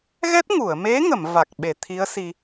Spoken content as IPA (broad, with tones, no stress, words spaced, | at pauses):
ɣɛ˦˥t̚ŋu˨˩˨ə̯me˧˥ŋə˨˩˨m va˨˩k̚ɓe˨˩˨t̪ʰi˧˥ə̯ si˧